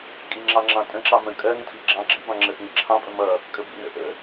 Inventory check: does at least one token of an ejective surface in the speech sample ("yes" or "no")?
yes